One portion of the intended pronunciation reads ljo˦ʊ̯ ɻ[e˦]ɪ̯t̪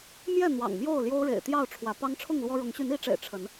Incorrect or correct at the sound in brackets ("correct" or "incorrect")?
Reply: incorrect